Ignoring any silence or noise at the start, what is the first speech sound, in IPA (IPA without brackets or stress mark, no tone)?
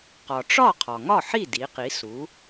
q